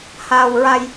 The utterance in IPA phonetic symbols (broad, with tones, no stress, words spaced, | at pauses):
haː˧wɹa˧j